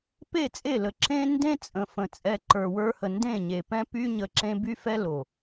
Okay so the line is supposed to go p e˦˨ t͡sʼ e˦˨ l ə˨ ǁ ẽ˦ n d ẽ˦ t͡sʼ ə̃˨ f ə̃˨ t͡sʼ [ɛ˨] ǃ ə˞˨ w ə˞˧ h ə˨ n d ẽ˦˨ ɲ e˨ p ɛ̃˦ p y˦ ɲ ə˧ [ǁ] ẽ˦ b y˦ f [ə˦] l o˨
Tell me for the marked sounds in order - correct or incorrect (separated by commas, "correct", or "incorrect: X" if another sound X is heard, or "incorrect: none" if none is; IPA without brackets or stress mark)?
incorrect: ɛ˧, correct, incorrect: ɛ˦